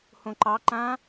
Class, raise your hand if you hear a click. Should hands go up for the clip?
yes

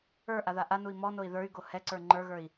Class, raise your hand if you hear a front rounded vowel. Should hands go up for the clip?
yes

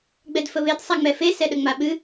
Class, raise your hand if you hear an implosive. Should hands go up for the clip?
yes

